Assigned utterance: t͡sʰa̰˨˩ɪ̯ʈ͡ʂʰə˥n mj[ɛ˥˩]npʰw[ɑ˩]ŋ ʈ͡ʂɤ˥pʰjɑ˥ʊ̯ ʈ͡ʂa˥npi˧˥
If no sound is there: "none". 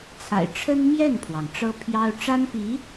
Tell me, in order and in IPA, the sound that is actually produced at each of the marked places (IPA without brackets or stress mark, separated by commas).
ɛ˥˩, ɑ˩